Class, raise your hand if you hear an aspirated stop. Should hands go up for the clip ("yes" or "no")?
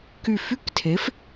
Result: yes